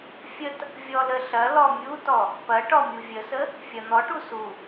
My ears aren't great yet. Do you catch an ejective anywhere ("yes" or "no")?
no